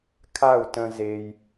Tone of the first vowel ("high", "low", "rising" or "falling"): falling